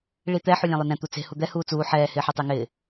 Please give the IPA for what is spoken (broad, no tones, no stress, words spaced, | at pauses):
ɭit̪ɛ ħulʲɛ̃lˠʊnɛ̃ t̪ut͡se̤ hud̪ɛ huːt͡suː ħɛː hɪːħɔtˤɛŋɪː